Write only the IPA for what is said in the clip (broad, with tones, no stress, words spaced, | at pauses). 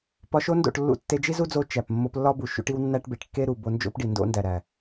pɒ˧ʃo˦ndo̰˦˨ʈ lːṵ˧tːe˧ d͡ʒi˦zu˦d͡zo˧ t͡ʃæ˨p mːo˧plːɒ˦bu˨ ʃṵ˧ʈi˧w nːæ˦ʈbe˨ʈ kːe˦ɾu˨ bo˧nd͡ʒo̰˦pɖi˨ ndo̰˦ndæ˨ɾæ˨